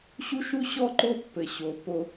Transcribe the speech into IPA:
ɕ u˦ ʃ u˦ ɕ ɔ˦ ǃ o˦ pː ɘ˨ ɕ o˨ p o˦

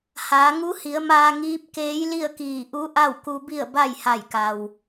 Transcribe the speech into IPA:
h aː˩˧ ŋ u˧˥ h i˩˧ ə̯ m aː˧ ŋ iː˧˥ p̚ k eː˧˥ j l i˥˨ ə̯ k iː˧˩ ʔ u˧˥ ʔ a˥˨ w k u˧ b i˥˨ ə̯ b a˥˨ j h a˧˩ j k a˩ w

